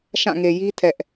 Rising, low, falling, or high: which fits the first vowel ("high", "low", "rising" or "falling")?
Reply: falling